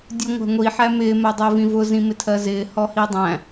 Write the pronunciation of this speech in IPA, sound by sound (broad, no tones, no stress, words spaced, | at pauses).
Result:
dʲuŋʷæ̤ŋʷi ħæmɪː mɜdˤʊːvĩvʊ zĩmɪtʰɜzɪː hɔhidˤæ̃